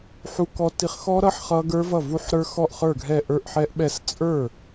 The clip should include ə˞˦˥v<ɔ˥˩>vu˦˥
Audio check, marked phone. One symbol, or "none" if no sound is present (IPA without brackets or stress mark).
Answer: ʌ˥˩